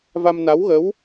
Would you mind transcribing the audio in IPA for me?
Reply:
v a˧ m n a˧˥ w ɣ ə˧˥ w

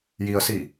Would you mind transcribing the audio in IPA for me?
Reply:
j i ə̯ s i

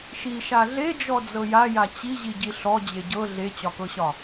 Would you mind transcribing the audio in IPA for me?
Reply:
ʃ i ʃ a ɮ e d͡ʒ ɔ d͡z ɤ j a j a t͡ɕ i ʑ i ɟ i ɬ ɔ d͡ʑ e ɟ ɤ ɮ e t͡ɕ ɒ k ɤ ɕ ɒ

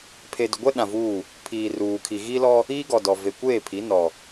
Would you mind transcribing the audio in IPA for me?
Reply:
pʰ e˨ d ʊ˨ ɡʷ ɛ˦ ɗ ã˨ v uː˦˨ | pʰ iː˨ r uː˨ kʰ i˨ ɣ i˦ l ɔ˦ | iː˦ ɡ ɔ˨ d ɔ˨ v e˨ kʷ eː˦˨ pʰ i˨˦ n ɔ˦

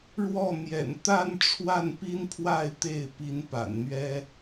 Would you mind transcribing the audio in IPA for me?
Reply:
ɻ w ɔ˥˩ n̪ j ɛ̰˨˩ n t̪ a˥˧ n ʈ͡ʂʰ w a˥˩ n p i˥ n pʰ w a˥˧ ɪ̯ t̪ e˥˩ ɪ̯ p i˧˥ n p a̰˨˩ n n̪ ɥ ɛ˥

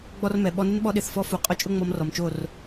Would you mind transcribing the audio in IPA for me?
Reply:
ɡ͡b ɔ˦ r m ɛ˨ ɓ ɔ˧ n ɪ˦ n ɓ ɔ˧ ɗ ɪ˧ θ f ɔ˦ f u˨ qʼ ʊ˦ t͡ʃʼ ʊ˦ ŋ͡m ɔ˧ m r ɔ˨ m t͡ʃ o˦˨ r

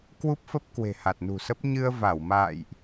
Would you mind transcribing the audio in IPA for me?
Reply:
k w u˦˥ p̚ f ə˦˥ p̚ k w e̤˨˩ h a˨˩ t̚ n ṳ˨˩ s ə˦˥ p̚ ɲ ɨ˧ ə̯ v a˧˩ w m a̰ː˧˨ j ʔ

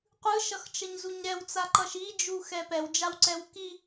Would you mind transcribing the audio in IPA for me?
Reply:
qʷ ɯ ʃ ʌ x t͡ʃ ʌ ɲ z u ɲ ɾ ɛ w t͡s a ǃ ʌ ʃ i d͡ʒ u x ɛ p ɛ w d͡ʒ a w ǀ ɛ w k i

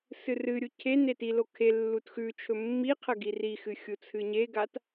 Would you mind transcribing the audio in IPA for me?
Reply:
s ɨ r ɨ ɾʲ u cʰ e n e t i l o kʰ e lː u t x ʉ t͡ʃʰ ɵ mː i qʰ ɐ ɡ i r i x ɨ xʲ u t͡sʰ ɨ ɲ e ɡ a t

